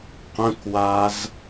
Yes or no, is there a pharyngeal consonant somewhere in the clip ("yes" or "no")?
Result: no